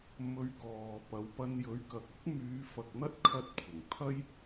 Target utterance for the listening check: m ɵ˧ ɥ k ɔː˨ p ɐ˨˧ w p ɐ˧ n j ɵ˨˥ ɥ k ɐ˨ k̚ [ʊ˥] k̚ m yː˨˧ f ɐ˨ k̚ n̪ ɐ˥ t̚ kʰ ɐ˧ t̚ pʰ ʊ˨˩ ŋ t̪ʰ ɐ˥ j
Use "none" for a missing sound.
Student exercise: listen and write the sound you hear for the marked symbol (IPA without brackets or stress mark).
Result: ʊ˥